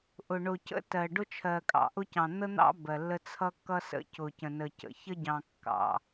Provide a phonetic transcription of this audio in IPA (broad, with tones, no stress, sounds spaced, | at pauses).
ʔ ʊ˨ ɳ ʊ˨ c ə̰˦ t ɜ˨ ɖ ʊ˦ t͡ʃʰ ɜ˨ kʼ ɑ̰˨ ʔ ʊ˦ c ɑ̃˨ n̪ ə˦ n̪ ɑ̰˦ b ɜ˨ lː ə˦ t͡sʰ ʌ˦ kː ʌ˦ s ə̰˦ c ʊ˨ c ə̃˨ n ə˨ c ə̰˨ ç ə˦ ɟ ɑ̃˨ kː ɑ̰˨